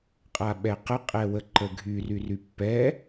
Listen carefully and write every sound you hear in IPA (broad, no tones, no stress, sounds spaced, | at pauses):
qʼ a ɓ ɛ q ə qʼ ɛ w ə ǃ ə ɡʱ y r y r y pː ɛ